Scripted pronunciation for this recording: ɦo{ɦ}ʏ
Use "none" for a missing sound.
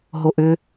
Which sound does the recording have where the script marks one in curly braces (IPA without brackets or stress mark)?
ʔ